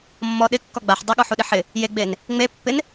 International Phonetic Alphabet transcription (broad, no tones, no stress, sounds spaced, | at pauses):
mː ɔ ɗ ɪ kː ɔ ɡ͡b a ħ dˤ a ɠ ɔ ħ u ɗ ɪ ħ ɪ | j e ɡ͡b e n | ŋ͡m e pː ɪ n